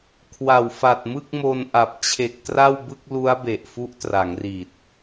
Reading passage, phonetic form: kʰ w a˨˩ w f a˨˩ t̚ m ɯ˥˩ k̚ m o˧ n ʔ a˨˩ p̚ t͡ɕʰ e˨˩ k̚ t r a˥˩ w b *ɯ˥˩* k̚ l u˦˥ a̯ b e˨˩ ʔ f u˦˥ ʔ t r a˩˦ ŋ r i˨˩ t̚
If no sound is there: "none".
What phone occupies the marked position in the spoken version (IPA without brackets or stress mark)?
ɯ˥˩